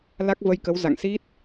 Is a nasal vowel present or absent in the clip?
absent